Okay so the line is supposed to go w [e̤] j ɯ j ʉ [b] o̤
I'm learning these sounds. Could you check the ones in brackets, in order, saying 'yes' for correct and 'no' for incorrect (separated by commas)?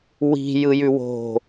no, no